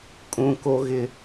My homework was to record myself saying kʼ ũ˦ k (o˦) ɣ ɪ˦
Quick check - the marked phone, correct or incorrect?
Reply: correct